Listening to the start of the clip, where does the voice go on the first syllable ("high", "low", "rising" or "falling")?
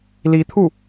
rising